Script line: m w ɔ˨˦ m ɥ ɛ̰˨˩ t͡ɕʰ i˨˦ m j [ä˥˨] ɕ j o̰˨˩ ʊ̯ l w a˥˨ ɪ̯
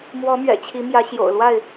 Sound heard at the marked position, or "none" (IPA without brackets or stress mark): ä˨˦